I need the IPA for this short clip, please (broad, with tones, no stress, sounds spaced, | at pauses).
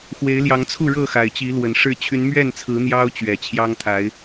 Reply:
x w e˨˦ ɪ̯ l j ɑ˨˦ ŋ t͡sʰ u˥˨ ɻ ɤ˥˨ x a˨˩ ɪ̯ t͡ɕ i˨˦ l w ə˨˩ n ʂ ɻ̩˥˨ t͡ɕʰ y˨˦ n m ɥ ɛ˥˨ n t͡sʰ ɹ̩˨˦ n̪ j ɑ˦ ʊ̯ t͡ɕ ɥ ɛ˨˩ t͡ɕʰ j ɑ˦ ŋ t̪ʰ a˨˦ ɪ̯